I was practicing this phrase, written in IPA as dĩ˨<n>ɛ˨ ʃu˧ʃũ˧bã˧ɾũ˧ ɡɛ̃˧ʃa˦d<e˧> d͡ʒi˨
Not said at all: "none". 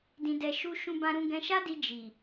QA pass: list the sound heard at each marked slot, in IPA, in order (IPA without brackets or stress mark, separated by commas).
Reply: d, i˧